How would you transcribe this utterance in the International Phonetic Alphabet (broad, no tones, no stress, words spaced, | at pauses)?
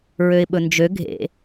ɹøɪ̯ɓɵnd͡ʒø ɡʱḛ